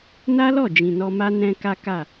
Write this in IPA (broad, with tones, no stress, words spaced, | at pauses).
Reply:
na˦lɔ˦˨ d͡ʒĩ˨nɔ˧ma˦ nɛ̃˧ ka˦ka˦˨